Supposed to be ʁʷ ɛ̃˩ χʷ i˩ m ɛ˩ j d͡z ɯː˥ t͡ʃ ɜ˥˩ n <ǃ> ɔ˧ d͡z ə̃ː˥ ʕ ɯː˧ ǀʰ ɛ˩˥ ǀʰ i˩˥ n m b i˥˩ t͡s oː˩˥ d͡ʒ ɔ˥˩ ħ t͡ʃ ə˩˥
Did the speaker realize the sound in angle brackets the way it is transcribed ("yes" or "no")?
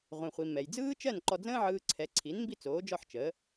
yes